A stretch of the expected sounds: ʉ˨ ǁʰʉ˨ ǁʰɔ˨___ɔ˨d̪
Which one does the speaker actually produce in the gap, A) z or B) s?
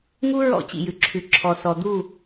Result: B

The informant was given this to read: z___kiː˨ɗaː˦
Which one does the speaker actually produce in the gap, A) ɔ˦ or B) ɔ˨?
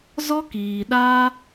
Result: A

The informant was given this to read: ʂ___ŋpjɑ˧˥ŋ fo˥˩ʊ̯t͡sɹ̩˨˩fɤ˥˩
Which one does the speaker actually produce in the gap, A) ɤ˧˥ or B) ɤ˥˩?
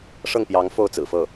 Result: B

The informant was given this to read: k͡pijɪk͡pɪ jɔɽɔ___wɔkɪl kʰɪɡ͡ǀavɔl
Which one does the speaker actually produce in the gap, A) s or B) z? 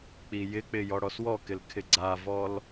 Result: A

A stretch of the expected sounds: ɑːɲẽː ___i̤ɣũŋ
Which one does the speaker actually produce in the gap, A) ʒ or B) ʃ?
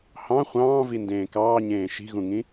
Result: B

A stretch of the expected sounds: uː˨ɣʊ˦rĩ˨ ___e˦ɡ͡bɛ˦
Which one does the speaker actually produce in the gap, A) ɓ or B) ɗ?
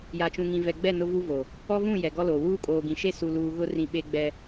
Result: A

